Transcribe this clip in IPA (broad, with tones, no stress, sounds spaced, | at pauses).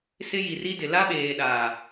s ɪ˦ j i˨ r i˦ d ɪ˨ l a˦ ɓ eː˨ ɗ a˨